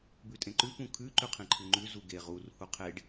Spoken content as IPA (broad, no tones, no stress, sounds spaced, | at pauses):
b ʉ tʼ ẽ ǃ ʉ p ũ kʰ ʉ ǃ ʉ qʰ ẽ ǃʰ ʉ ŋ͡ǃ ʉ z u ɡ e ʁ u r h u qʰ e ɖ